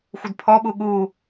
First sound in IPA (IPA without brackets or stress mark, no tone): xʷ